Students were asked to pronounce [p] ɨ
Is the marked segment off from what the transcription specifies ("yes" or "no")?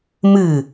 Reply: yes